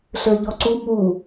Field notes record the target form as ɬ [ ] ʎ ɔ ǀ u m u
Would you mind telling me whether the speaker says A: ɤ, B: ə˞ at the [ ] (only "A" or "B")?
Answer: B